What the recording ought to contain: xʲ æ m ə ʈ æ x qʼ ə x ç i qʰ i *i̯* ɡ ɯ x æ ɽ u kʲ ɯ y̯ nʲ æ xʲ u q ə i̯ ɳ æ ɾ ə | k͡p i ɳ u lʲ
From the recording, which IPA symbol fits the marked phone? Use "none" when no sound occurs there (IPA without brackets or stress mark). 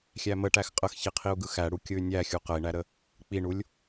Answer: u̯